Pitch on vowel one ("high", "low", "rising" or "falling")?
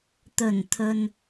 low